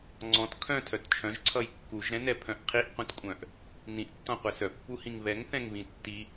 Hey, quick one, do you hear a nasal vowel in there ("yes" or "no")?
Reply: yes